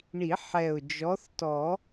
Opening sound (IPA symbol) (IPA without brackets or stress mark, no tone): ɳ